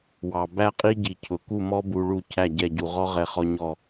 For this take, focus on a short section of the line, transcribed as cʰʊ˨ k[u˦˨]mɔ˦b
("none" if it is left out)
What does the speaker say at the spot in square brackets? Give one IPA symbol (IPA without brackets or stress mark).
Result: u˦˨